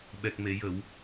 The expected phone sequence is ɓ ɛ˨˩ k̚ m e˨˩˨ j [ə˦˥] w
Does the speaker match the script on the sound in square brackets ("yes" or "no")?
no